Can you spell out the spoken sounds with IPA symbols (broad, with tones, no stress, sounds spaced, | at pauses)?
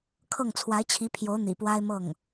kʰ ɤ˥˩ ŋ t͡sʰ w a˧˥ ɪ̯ t͡ɕʰ i˧˥ pʰ j o˧˥ ʊ̯ n̪ ḭ˨˩ p w a˥ ɪ̯ m ɤ˥˩ ŋ